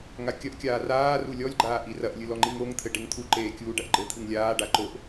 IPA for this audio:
ŋakʲɐʔkʲaː raː rulʲɔlʲɡ͡ǃaːʔ irɐʔlʲɨ lɔŋ͡ǃiŋoŋt̪ʰɘ ɖeŋt̪ʰuǃeː kʲuːɖɐʔɡ͡ǃɘt̪ʰɨŋ lʲaːɖa ǃoʔ

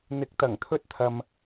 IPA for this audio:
n̪ɪ˨k̚t̪ɐ˨˩ŋt̪ʰɵ˧t̚ t̪ʰɐ˨m

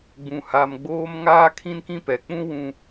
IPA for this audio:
ɡ͡bũ˨ha˨mɡ͡boː˦m ŋaː˦kʰĩ˦nkĩ˦pɛ˨ k͡pũ˦ wũ˦

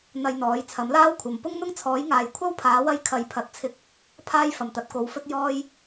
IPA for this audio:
n̪ɐ˧jn̪ɔː˨˥j t͡sʰɐ˨˥mlaː˥wkʷʰɐ˨m pʊ˥ŋn̪ʊ˥ŋt͡sʰɔː˨˥jŋaː˨j kʷʰɐ˥wpʰaː˨˥wɐ˧j kʰɐ˨˧jpʰɐ˨˥t̚t͡sʰɪ˧k̚ | pʰaː˥j fɐ˨˩mt̪ɐ˨˥t̚ko˨˥wfɵ˥t̚ jɔː˧j

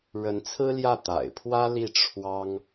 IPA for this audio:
ɻə˧˥nt͡sʰɹ̩˥ljä˥˩ t̪a̰˨˩ɪ̯ pʰwä˥li˥˩ ʈ͡ʂʰwɑ˥ŋ

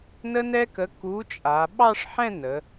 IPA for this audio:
nə˥nɛ˥kə˨˥ ku˨˥t͡ʃʼa˩˧ ɓɑ˥˧ʂħɛ̃˥˧ nə˩˧

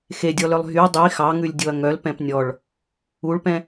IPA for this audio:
xedʲɔlœlˠ ɦy dˤi xɑŋʉlʲdʲoɐ̯ ŋœl pɛ̃pnʲɔɭ | uɭpɛ̃

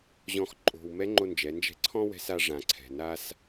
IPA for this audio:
ʑɔ̃˧x ǃʼo̤˧w mɛ˧˥ŋ͡ǃo˧nd͡ʒɛ˩˧ nd͡ʒɛ̤˧˥ǀʰɔ̃˥wɛ̤˧˥s a˧ʐã˩ǀʰɛ̤˩ na˧s

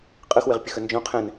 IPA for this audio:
qʼɯxwɪʁpʲəxə nd͡ʒõ qʰɛ̃n

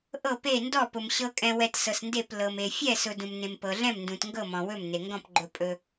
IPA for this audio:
ʔɤ˥˧pe˥˧ ndɔ˥˧pʊ˧m ɕɤ˧kʼɛ̃˧wɛ˧t sɤ˧snde˥˧p lɤ˧me˧ fʲɛ˥˧sʊ˧ dũ˧mnẽ˧mpɤ˧ɮɛ̃˥˧m ndũ˧tŋɡɤ˥˧mɔ̃˧ wɵ˥˧mne˧ŋɡɔ̃˥˧p ɡ͡ǃɵ˧pʼɵ˧

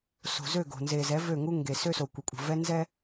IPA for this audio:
so̤˨zø˦˨ɡo̤˨ nze˨zɛ˨˦ vø˦˨ŋu˦ŋɡe˨ sø˦so˨ kʷɘ˨kʷʼə̤˨vɛ˦ nzɛ˦

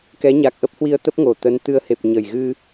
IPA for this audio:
kɛ˨˦ ɲa˨˩k̚ʔə˦˥p̚hwi˧ə̯t̪ə˦˥p̚ ŋo˨˩t̪ə˨˦nt̪ɨ˧ə̯ he˨˩p̚ɲə˨˩jɣɨ˧

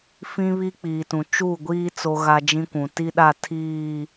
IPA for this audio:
fĩ˦ βi˦k͡piː˨tũ˨ t͡ʃu˦˨ɡʷiː˦ t͡so˦ɣa˦d͡ʒĩ˦kʷũ˨ ti˦ɗa˦˨ tʰiː˦˨

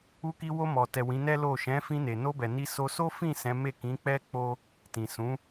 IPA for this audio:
u˧ki˧wo˧ mɔ˨tɛ˨ wĩ˨˦nɛ˦lo˦˨ ʃɛ̃˨˦ fĩ˧ne˨no˧bɛ˨ ni˧so˧so˦fĩ˦˨ sɛ̃˨˦me˦˨ kĩ˨˦k͡pɛ˦k͡po˦ | tĩ˨sũ˨˦

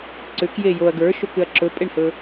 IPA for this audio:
ǀʏkje joɐ̯ ɡə˞ʃokʏɐ̯ ǁɵpʼeɳhɵ

